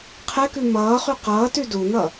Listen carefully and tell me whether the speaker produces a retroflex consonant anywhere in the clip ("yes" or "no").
no